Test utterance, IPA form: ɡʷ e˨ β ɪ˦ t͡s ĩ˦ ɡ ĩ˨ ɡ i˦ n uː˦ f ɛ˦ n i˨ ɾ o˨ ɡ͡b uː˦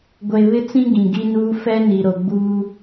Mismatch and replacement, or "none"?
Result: none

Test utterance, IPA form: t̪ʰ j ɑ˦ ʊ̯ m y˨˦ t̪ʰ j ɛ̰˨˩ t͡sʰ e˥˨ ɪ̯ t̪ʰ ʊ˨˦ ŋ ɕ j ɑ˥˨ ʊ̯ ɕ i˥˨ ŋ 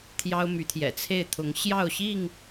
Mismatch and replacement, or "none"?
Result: none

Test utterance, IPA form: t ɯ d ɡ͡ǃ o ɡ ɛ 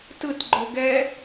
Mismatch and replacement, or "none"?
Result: d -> t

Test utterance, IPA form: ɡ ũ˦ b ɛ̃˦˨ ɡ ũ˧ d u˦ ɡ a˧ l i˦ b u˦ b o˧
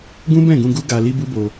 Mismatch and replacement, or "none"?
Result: d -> ɡ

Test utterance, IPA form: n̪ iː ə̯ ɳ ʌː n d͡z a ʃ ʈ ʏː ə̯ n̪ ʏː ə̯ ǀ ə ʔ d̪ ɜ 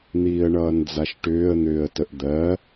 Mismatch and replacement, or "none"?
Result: ǀ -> t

